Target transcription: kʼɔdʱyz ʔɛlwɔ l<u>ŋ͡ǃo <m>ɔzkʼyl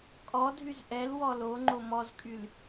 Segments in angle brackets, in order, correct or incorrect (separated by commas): incorrect, correct